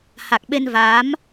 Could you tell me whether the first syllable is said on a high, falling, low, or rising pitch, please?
low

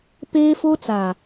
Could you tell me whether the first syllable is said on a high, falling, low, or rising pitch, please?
high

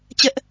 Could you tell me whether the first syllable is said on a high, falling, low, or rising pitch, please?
high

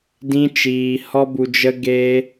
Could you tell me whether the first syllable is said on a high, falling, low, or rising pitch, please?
high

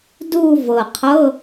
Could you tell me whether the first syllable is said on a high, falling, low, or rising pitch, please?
falling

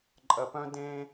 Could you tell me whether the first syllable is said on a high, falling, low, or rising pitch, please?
low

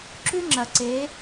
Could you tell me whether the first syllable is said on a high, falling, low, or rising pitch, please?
high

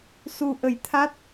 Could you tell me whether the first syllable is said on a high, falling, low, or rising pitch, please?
low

